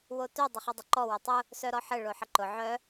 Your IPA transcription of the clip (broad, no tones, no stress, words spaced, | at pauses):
wotœ dˤəχɘdˤəǃɔ wʊtˤʊ | sœɾɔħɘ ɭoħəǃʊ ʕœ